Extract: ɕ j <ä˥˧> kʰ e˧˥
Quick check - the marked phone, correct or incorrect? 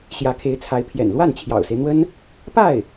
incorrect